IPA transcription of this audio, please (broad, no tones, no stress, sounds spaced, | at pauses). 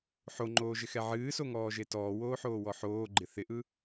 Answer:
ħ o ŋ͡ǃ oː ʒ ɪ x ɛ ʕ ɨː s o ŋ ɔː ʒ e t ɔː w oː ħ oː w ɔ ħ oː ɡ͡ǃ ɪ θ ɪ ʔ ɯ